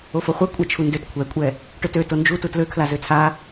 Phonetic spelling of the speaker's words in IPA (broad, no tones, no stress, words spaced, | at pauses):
ofoχʷɛ kʷʼat͡ʃʰundøt kʷʰɛkʷʼɛ | ʈøtø tond͡ʒutu tløkʰla zøt͡sʰa